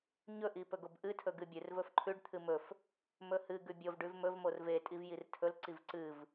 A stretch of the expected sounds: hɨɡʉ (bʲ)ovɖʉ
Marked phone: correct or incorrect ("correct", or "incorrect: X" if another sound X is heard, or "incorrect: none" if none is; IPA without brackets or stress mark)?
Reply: correct